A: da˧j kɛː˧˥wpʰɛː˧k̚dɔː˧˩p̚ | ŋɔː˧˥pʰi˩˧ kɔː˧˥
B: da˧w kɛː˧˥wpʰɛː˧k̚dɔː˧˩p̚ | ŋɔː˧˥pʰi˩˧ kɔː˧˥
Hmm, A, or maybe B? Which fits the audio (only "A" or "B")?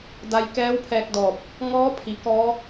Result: A